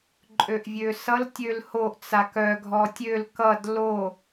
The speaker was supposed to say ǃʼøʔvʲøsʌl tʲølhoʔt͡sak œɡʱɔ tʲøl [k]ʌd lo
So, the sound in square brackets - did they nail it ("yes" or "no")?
yes